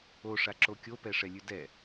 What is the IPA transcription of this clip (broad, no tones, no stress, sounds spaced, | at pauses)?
o ʂ a ǁ o kʲ o p ɛ ʂ ɛ lʲ ʉ d ɛ